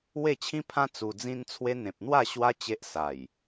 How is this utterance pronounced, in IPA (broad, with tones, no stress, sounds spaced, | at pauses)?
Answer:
w e˥˧ t͡ɕʰ ĩ˦ pʰ ã˦ t͡s u˧ d͡z ĩ˦ n t͡sʰ w e˦ n̪ ẽ˨ p̚ n̪ w a˥˧ ɕ w a˦ t͡ɕ e˦ ʔ s a˨˩ j